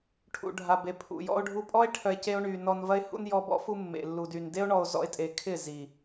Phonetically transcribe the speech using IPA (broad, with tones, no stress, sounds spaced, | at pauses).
ʈʰ ṵ˨ ɖʱ a˨ b e˨ pʰ ṵ˨ j ɔ̰˦ o̯ ɖʱ u˦ pʼ ɔ˦ e̯ ʈʰ œ˧ e̯ c e˦ o̯ ɳ y˧ n ɔ˧ n v ɐ˦ e̯ h ṵ˦ n j ɔ˧ b ɔ̰˦ f u˧ mː ḛ˨ lː u˨ d y˨ n d e˦ o̯ ɳ ɔ˧ o̯ z ɔ̰˧ e̯ tʼ e˨ kʰ ɪ˦˨ z i˨